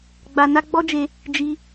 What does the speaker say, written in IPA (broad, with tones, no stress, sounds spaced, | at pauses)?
ɡ͡b a˧ n a˦ ɡ͡b ɔ˦ d͡ʒ e˧ | d͡ʒ i˧